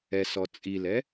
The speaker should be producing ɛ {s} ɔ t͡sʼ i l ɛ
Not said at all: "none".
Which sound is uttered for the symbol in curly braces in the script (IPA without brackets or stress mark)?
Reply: s